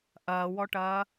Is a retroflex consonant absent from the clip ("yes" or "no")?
no